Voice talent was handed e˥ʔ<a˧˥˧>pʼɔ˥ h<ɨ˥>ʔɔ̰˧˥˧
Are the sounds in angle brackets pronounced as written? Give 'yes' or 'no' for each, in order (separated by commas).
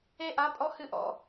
yes, yes